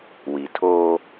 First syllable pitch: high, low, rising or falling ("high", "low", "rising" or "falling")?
low